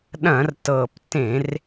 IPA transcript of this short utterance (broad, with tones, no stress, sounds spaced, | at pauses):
ɗ ɐ̃˧˩˧ r t ɤ˨˩ p t ẽ˧˩˧ r